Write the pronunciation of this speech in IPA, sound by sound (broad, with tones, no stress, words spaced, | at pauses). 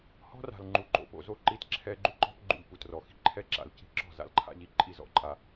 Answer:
hɔ̤˦ra̤˨l ŋ͡ǃu˨ǃo̰˨po̰˨zo˦˨ ǃi˦t ǁʰɛ˦ ɡ͡ǃu˦ǃɔ̤˦p ɡ͡ǃṵ˨ʎ pu˨trɔ˨xi̤˦ ǃʰɛ˦ǁa̰˨l ci̤˦ǁɔ̤˦˨ za̰˦lǃʰa̰˦ʎi˨ ǃʼi˦˨zɔ̰˦˨ǃʼa˨